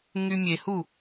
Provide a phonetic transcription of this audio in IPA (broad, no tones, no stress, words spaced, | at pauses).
ŋymʲehu